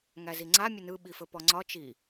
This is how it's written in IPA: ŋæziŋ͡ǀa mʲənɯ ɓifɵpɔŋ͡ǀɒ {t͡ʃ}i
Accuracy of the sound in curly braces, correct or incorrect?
correct